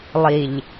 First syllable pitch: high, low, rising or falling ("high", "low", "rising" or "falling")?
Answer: low